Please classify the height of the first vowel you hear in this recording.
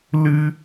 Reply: high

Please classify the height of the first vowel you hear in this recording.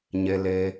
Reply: mid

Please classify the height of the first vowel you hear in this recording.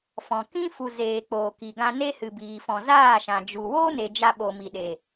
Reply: mid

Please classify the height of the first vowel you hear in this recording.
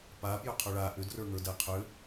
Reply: low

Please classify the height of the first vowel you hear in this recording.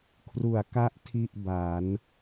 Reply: high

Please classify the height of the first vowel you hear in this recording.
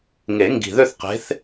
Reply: mid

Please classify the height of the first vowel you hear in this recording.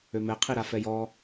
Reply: mid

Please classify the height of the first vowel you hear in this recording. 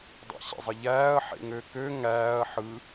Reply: low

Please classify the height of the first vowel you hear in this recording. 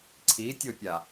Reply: high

